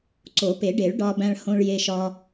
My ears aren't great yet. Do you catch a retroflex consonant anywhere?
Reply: yes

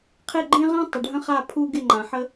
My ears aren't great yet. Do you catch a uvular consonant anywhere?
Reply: yes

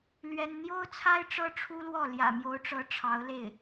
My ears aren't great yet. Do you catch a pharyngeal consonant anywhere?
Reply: no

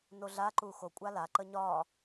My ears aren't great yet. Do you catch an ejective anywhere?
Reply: yes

